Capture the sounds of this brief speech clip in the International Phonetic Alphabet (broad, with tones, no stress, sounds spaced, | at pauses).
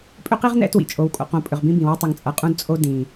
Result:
pʼ ʏ˦ q i˦ ʁ n ɛ̰˦ t w ḭ˨ t͡ʃʼ o˨ w kʼ o̰˨ q õ˨ pʼ ʏ˨ ʁ b ĩ˦ b ĩ˨ w ʏ˦ tˤ ʏ˨ ŋ t͡sʼ ʌ˨ qʼ ũ˦ d t͡sʼ o˦ d ĩ˨